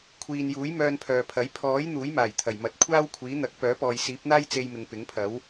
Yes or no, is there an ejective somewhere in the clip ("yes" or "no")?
no